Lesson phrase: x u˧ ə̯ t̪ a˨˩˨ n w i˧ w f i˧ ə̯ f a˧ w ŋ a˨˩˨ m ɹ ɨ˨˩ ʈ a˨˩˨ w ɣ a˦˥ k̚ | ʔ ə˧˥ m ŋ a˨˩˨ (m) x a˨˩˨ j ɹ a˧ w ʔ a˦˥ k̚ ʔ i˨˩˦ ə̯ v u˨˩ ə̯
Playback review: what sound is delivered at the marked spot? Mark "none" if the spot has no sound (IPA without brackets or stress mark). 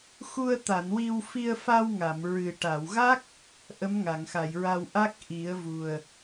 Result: ŋ